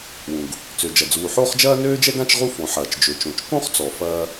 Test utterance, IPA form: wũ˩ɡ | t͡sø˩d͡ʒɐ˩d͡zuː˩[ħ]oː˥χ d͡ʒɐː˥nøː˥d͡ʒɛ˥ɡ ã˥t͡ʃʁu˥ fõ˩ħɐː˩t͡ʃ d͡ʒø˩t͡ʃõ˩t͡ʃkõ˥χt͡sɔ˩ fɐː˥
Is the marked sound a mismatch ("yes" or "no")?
no